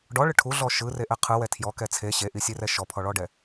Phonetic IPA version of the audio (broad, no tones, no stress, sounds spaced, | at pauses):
ɖ ɔ ɭ ɯ ʈʰ u ɮ ɔ ʃ ɯ r e ʔ ɛ qʰ ɯ w ɛ tʰ j ɔ k ɛ t͡sʰ e ɕ e ʔ i sʲ e r ɛ ʃ ɔ pʰ ɔ ɭ ɔ ɖ ɛ